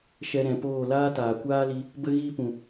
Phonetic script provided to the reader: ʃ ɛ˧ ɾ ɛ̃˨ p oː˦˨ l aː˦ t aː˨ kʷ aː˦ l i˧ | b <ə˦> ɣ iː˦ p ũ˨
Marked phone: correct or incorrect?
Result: correct